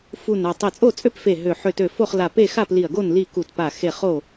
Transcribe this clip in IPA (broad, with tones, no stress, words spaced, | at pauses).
fu˧˩na˧˩ tˤi˧˩t͡sʼo˥˨t͡sʼø˥˨p fe˧˩ ɦø˧˩ ħø˧˩tø˧˩ fo˥˨χla˧˩pe˥˨ xa˥˨pli˧˩ɐ̯ɡo˥˨n li˥˨ ku˧˩tpa˧˩ xe˥˨ χo˥˨